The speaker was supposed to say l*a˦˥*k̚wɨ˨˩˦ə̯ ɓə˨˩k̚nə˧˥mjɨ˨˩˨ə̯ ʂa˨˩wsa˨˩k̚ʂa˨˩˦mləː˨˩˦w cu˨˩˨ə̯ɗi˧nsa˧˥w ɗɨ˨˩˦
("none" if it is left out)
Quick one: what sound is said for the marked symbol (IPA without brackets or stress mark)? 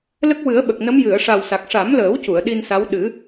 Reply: ə˦˥